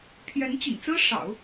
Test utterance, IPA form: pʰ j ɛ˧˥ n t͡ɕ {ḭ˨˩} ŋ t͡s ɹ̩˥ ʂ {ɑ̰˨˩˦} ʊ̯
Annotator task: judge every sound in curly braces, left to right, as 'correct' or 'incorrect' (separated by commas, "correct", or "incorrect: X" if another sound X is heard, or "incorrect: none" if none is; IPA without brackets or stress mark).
correct, correct